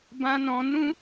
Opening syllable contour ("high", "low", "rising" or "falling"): high